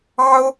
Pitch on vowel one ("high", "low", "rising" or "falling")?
high